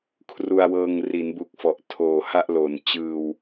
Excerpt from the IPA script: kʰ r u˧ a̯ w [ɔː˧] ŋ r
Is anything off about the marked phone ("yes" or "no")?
yes